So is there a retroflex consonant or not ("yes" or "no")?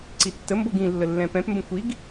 no